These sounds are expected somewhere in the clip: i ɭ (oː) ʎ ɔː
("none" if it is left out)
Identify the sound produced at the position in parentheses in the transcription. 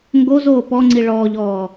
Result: ɔː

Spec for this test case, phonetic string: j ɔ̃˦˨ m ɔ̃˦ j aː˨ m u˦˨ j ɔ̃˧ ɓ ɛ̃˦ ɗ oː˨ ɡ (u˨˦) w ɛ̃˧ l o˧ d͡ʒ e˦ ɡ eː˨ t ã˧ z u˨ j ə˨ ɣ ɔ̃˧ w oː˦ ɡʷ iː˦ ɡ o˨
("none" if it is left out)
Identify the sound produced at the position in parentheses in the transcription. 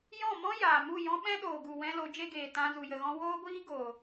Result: u˨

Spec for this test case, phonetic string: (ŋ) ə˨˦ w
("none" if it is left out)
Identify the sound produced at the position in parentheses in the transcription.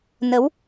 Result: n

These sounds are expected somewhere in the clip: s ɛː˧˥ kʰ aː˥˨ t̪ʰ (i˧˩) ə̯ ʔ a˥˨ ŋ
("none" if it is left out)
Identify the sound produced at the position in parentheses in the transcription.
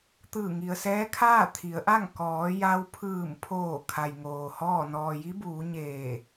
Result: i˩˧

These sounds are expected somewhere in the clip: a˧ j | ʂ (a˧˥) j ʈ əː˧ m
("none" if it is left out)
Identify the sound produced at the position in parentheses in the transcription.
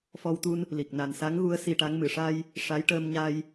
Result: a˧˥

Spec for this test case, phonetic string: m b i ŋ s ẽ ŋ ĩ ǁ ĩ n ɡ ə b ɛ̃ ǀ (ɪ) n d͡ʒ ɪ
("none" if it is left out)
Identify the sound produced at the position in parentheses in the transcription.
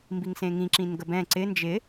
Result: ɪ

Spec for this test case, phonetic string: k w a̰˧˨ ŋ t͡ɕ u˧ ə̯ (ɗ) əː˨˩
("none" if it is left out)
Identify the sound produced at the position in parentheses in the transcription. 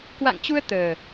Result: t̪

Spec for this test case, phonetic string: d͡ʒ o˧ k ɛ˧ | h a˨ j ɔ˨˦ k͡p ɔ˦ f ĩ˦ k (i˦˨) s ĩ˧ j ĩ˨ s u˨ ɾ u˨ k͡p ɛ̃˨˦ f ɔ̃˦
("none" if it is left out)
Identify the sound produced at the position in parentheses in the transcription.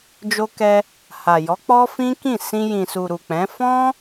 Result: ĩ˦˨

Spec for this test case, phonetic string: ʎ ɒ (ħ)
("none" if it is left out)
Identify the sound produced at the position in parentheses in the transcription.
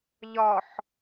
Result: ħ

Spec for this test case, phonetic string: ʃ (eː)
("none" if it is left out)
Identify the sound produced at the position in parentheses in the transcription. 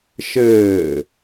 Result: ɘː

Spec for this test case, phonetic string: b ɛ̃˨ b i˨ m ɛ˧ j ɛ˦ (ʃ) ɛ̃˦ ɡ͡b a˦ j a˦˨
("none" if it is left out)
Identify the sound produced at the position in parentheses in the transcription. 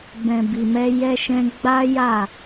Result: ʃ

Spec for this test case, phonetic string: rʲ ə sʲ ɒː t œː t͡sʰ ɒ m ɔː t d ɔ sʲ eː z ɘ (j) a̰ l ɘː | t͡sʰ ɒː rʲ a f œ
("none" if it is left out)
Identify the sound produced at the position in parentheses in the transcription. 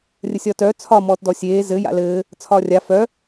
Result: j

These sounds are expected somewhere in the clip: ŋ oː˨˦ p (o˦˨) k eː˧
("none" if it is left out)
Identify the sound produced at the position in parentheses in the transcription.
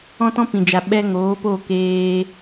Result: o˦˨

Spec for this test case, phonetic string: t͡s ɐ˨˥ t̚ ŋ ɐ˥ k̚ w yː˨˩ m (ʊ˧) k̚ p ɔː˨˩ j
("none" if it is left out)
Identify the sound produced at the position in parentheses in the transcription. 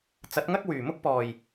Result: ʊ˥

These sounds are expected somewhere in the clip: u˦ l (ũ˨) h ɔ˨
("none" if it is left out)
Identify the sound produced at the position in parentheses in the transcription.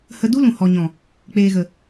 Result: ũ˨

